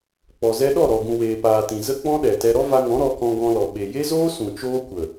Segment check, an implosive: present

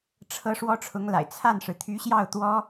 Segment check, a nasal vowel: absent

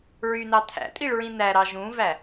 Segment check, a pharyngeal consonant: absent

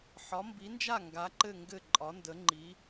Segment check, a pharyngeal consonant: present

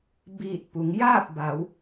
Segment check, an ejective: absent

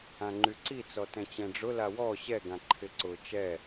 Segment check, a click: present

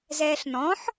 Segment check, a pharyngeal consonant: present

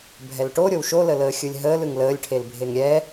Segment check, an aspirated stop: present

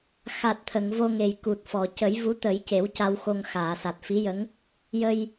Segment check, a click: absent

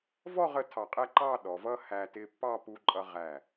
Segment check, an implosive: present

